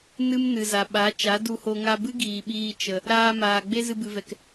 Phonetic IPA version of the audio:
nɨ˦mnɨ˨za˨ɓa˨˦ t͡ʃa˨˦du˧ho˧ ŋa˧bɨ˦ ɡiː˨ɓiː˧ t͡ʃə˨ | ɾaː˧maː˨ ɡ͡be˦zɨ˧bɨ˨vɛ˨k

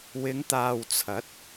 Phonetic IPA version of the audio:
wɪ˨˧ŋt̪aː˨wt͡sʰɐ˨˥t̚

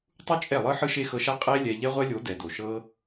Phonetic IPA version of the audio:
tˤu˦t͡ʃʼɛ˦˨lˠɯ˦ ħɯ˦ʃe˦xɤ˧ʃa˦ qʼe˦lʲɛ˧ ʎɛ˦ʁʷɛ˦lʲo˨˦ dɛ˨do˨ʃɤ˦

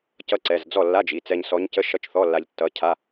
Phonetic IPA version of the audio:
cʌ˧˥ǀɛ˩˧˩zd͡zɔ˥˩ lːa˧˥˧d͡ʒi˩˧˩t͡sɛ˧ɲsɔ˧˥ɲ cə˧˥˧ ʃʌ˧˥˧t͡ʃθɔ˧˥˧lːa˧ʎ tːʌ˧˥cʰa˧˥˧

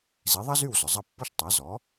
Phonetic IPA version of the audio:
zi˩˥ðˤɐ˥zy˥˩w zʊ˩zˤɐ˥˩pːɔ˥ʃ tˤa˩˥zɔ˩˥

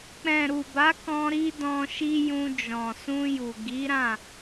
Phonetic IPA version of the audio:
k͡pɛ̃˨ ɾu˨ba˨˦kɔ̃˧ ɾi˦dɔ̃˧ʃi˦jũ˧ d͡ʒɔ̃˨sũ˧ju˨ ɡi˨˦ɾã˦˨

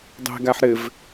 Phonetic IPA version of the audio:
dˤɛ̤ɡaħ ɾɘv

